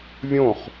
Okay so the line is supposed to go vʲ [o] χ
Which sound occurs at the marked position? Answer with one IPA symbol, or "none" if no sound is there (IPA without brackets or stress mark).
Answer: õ